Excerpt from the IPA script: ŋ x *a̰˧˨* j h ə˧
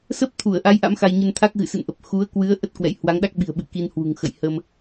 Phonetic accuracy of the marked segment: incorrect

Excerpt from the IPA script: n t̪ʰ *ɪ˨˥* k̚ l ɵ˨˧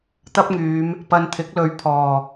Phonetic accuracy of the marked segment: correct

